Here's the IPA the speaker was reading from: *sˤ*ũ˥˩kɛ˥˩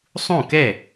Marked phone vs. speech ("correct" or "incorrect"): correct